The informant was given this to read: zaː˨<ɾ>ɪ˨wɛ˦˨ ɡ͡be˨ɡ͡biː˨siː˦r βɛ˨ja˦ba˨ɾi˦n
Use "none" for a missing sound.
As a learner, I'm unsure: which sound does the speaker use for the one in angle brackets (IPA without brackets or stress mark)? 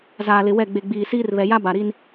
l